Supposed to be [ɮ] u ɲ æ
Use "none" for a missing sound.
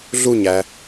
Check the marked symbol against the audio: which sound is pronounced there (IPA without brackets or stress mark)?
ɮ